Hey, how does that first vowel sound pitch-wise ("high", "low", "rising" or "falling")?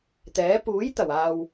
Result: rising